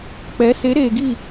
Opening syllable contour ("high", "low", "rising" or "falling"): rising